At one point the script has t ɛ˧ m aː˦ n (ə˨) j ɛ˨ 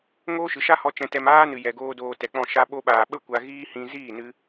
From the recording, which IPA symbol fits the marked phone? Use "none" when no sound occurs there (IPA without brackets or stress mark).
ɨ˨